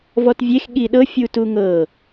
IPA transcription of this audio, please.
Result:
v ɔ t vʲ e x ɠ i ɗ ɤ fʲ u t u ŋ ɤ

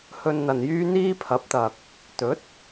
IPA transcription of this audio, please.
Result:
h ɵ˧ n n̪ ɐ˨ n j yː˥ n̪ iː˥ pʰ ɐ˨˥ p̚ t̪ ɐ˨ k̚ | t̪ ɵ˨˥ t̚

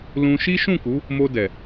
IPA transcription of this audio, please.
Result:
l ũ˧ ʃ i˦ ʃ ũ˦˨ k u˨˦ | m o˧ d ɛ˨

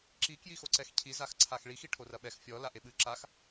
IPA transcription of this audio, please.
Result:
ǁ i k j i x o ǀ ɛ x cʰ i z a x ǀʰ a x ɭ i x i ʈʰ o r ɐ ɓ ɛ x fʲ ɔ l a ʔ e ɓ ɨ ǁ a x

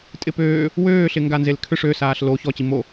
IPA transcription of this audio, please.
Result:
tʼ ɪ p øː | w øː ɬ ɪ ŋ ɡ a n z e l kʰ ʏ ʂ ø s aː ɬ l o ç ɔ t͡ɕ i m o

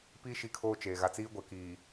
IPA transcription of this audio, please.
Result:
p i˦ ʃ i˦ kʰ oː˦ t͡ʃ eː˨ ɣ a˨ t͡s iː˦ ɡʷ ɛ˨ k iː˨

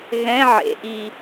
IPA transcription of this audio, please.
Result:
ɣ ɛ̃ ʕ ḛ ʔ i

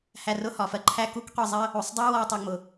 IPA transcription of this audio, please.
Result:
h æ˧ r ʊ˥ h ɒ˩ f ɜ˥ ǃʰ æ˥ k u˥ k qʷ i˧ zˤ ɜ˥ | u˩ sˤ dˤ u˥ w ɔ˧ tˤ ɜ˧ ŋ͡m ʊ˩

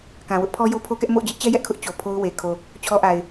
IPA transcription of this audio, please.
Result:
k ã˨ w ʊ˦ ʔ pʰ ɔ˦ j o˦ pʰ o˦ k ɛ˦ ʔ m o̰˦˨ ʊ̯ d͡ʑ ɪ˦ ʔ t͡ɕ ɛ˦ j ɛ˦ ʔ kʰ ʊ˦ ʔ t͡ɕ o˨ pʰ o˦ ʊ̯ w e˨ kʰ o˨ | t͡ɕʰ ɔ˦ ʔ a˨ ɪ̯

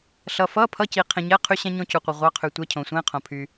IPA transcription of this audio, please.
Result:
ɬ ʌ˧ f ʌ˧˥˧ pʰ ʌ˧˥˧ c i˧ qʰ ĩ˧ ɲ ɛ˧˥˧ qʰ y˧ ɕ ɛ̃˧ ɲ õ˧ c u˧ qʷ i˧ ʁʷ ɑ˧˥˧ qʰ y˧ tʷ ɛ˧˥˧ cʰ õ˧ sʷ ɛ̃˧˥˧ qʰ õ˧ pʰ y˧

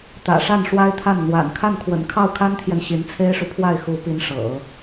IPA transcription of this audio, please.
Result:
t̪ ä̰˨˩ ʂ a˥˩ n ʂ w a˥ ɪ̯ t̪ʰ a˥˩ n n̪ w a̰˨˩ n kʰ a˥˩ n kʰ w ə̰˨˩ n kʰ ɑ˥˩ ʊ̯ kʰ a˥ n t̪ʰ j ɛ˨ n ɕ i˧˥ n t͡sʰ e˥ ɪ̯ ʂ u˨ pʰ w a˥˩ ɪ̯ x u˧˥ p i˧˥ n ʂ ɤ̰˨˩˦

